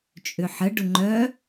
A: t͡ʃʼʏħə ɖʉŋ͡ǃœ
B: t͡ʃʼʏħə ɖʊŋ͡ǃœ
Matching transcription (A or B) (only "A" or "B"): B